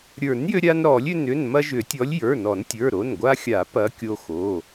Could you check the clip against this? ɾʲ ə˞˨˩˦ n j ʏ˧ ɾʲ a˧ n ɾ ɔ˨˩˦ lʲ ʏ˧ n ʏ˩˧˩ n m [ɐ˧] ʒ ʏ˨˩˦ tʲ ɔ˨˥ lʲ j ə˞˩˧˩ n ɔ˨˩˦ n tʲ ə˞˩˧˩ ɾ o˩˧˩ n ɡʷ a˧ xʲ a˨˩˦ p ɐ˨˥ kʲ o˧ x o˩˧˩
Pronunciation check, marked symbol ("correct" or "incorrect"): correct